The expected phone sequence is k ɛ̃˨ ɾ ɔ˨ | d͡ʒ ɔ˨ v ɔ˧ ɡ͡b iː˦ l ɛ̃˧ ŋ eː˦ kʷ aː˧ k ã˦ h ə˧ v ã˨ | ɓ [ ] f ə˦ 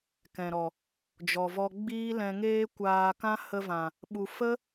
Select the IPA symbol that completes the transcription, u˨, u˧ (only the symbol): u˨